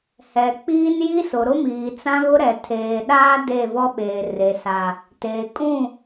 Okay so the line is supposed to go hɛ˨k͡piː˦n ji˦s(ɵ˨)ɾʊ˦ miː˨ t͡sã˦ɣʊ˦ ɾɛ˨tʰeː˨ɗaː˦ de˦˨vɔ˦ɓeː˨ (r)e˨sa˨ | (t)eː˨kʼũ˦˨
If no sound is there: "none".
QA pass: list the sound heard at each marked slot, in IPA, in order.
ʊ˨, r, t

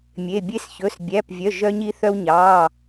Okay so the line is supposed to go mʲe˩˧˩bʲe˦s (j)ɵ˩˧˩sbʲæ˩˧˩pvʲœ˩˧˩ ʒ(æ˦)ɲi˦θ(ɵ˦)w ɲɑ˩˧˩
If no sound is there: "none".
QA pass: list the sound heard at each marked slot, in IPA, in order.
ç, œ˦, œ˦

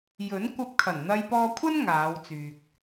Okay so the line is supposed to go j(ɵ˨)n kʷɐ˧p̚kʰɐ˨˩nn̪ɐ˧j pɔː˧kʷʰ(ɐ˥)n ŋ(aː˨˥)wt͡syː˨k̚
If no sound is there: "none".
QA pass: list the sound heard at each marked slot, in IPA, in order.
ɵ˨˥, ɐ˥, aː˨˧

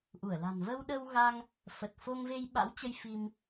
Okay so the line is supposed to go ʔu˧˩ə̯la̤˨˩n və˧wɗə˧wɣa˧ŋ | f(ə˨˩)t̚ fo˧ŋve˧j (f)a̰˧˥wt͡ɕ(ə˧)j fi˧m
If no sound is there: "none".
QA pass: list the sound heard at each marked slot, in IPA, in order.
ə˨˩, ɓ, ə˧

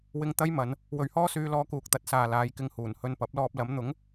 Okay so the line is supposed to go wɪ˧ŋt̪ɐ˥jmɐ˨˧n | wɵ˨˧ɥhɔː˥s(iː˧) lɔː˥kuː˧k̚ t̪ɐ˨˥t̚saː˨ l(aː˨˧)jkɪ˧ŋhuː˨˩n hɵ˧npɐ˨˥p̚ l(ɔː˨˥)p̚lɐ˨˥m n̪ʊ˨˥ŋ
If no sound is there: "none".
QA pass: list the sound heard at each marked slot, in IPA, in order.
yː˧, aː˨˧, ɔː˧

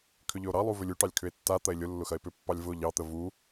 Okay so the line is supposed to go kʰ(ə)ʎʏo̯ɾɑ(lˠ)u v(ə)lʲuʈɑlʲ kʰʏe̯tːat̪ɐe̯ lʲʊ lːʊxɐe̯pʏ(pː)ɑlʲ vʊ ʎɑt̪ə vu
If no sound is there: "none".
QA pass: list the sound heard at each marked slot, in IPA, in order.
ʏ, lˠ, ʏ, pː

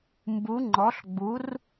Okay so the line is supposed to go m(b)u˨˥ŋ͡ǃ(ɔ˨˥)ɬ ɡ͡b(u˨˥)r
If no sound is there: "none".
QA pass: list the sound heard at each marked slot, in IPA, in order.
b, ɔ˨˥, u˨˥

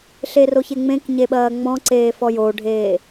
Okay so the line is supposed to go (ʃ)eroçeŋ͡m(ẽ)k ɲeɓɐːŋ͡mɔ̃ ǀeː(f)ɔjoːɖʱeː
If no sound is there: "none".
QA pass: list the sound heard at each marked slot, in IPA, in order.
ɬ, ẽ, f

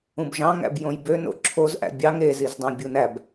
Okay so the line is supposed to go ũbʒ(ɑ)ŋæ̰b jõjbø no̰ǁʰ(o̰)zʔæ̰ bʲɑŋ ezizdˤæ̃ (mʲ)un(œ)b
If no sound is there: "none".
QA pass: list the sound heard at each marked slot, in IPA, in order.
ɑ̃, o, bʲ, æ

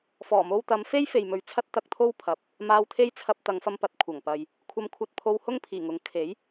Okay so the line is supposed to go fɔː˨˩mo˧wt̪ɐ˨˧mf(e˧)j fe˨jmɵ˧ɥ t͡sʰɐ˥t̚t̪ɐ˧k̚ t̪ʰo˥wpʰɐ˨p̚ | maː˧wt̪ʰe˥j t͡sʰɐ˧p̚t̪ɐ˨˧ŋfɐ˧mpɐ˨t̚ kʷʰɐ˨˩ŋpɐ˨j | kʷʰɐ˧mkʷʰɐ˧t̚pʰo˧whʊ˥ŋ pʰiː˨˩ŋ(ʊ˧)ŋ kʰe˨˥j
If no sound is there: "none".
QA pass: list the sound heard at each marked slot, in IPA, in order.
e˥, ʊ˨˥

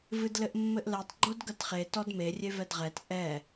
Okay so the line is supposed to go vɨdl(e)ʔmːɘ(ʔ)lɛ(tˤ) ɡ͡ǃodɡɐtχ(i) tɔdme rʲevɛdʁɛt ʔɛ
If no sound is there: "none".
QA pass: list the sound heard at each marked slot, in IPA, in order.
ɘ, ʔ, tˤ, e

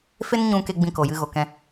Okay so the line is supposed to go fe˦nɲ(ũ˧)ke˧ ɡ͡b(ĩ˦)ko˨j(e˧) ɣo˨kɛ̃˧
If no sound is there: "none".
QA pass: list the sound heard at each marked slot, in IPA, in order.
ũ˧, ĩ˧, ɨ˧

